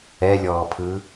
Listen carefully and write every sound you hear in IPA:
ɛ lʲ ɔː pʰ ɯ

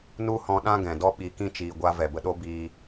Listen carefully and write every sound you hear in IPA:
n u˦ h ɔ̃˧ ɗ ã˦ ɡ ɛ̃˨ d ɔ˦ ɓ i˨˦ k ĩ˦˨ t͡ʃ iː˧ ɡʷ a˦ v ɛ˨ b ə˧ ɗ o˦ b iː˧

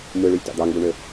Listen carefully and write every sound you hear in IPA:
m ɯ ɭ y lʲ t ɑ̰ d̪ ɑ ŋ ɡ u ɳ ø

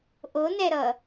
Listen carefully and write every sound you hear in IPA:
ʔ o n ɛ ɾ ʌ

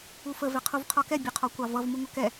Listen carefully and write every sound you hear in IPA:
u f ə v ɛ qʰ u v qʰ ɔ k ɛ bʲ ʊ qʰ ɔ kʷ ɑ v ʌ v m u ŋʷ ʌ k ɛ

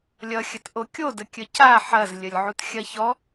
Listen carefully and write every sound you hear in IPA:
lʲ ʌ xʲ ə t ʔ o kʲ o d ə kʲ ə c a ħ ɐ z lʲ ə lʲ ʕ u t xʲ ɐ ç ɔ

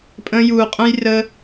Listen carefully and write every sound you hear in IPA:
pʼ ə̃˧ j u˨ qʼ ə̃˦ j r ə˧

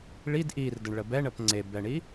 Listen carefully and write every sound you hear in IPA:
ɭ i d ʔ i r d ə ɳ ɭ ə b ɛ ɳ ə p ŋ͡ǀ e b ɛ ɳ i

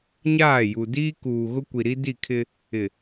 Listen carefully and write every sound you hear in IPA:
ɲ aː˦˨ j u˨ d iː˦ k uː˨ ɣ ʊ˦ kʷ i˨ ɾ i˦ d i˦˨ kʰ ɪ˦ | ɪ˨

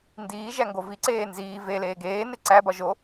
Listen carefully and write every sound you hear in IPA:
n d iː ʒ æ ŋ ɡ o v i ǀ eː n z iː v e l eː ɡ eː n e ǀ æ b ɒ ʒ o

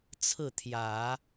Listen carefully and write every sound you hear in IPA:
t͡sʰ ɹ̩˥˩ t̪ʰ j ä˨˩˦

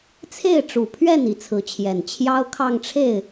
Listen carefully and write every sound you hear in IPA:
t͡sʰ e˥˩ ɪ̯ ʈ͡ʂ u˨˩ pʰ ɥ ɛ˥˩ n i˧˥ t͡sʰ ɹ̩˧˥ t͡ɕʰ j ɛ˨˩ n t͡ɕʰ j ɑ˥ ʊ̯ kʰ ɑ˥˧ ŋ ʈ͡ʂʰ e˥˩ ɪ̯

